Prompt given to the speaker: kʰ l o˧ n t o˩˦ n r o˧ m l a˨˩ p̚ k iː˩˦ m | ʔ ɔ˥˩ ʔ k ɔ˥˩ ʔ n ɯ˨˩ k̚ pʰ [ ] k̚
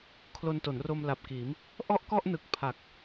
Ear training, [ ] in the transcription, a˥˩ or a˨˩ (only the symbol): a˨˩